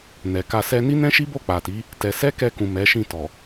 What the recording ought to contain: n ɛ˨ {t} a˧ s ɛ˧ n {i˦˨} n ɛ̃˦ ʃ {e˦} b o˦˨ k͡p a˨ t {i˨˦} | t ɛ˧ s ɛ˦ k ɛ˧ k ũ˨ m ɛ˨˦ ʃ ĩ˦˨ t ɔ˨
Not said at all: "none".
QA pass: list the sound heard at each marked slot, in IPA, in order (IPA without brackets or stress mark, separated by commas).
k, i˦, i˦, i˨˦